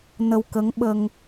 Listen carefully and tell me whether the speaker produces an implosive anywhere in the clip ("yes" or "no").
yes